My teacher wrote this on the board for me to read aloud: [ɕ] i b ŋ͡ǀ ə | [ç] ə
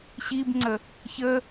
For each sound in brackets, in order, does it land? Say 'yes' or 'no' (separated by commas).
yes, yes